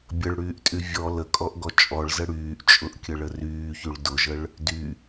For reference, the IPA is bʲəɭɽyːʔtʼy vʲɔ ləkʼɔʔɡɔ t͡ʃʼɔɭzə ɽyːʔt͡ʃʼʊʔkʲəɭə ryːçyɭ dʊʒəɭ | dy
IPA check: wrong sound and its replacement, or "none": none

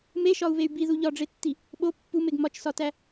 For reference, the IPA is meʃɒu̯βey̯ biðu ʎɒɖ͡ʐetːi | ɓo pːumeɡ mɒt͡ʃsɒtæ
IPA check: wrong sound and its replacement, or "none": none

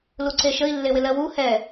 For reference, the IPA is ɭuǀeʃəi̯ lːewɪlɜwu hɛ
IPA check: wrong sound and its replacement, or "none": ɭ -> l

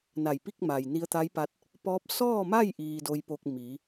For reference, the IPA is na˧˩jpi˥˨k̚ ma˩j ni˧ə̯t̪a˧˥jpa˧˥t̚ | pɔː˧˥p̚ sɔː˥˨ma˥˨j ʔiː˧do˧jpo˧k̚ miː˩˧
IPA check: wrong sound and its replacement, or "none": none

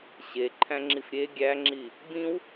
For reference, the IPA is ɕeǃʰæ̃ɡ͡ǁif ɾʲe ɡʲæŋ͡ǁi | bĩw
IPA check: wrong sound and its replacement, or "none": ɡ͡ǁ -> ŋ͡ǁ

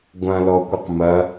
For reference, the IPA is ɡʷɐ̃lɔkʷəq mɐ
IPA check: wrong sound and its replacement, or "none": none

